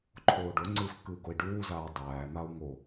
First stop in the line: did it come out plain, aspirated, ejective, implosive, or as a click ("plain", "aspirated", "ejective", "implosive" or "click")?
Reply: click